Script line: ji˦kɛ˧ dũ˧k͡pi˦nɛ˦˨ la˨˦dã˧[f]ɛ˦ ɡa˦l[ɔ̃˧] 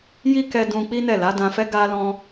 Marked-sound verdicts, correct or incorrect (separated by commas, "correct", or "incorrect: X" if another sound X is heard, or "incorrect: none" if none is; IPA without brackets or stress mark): correct, incorrect: ɔ̃˦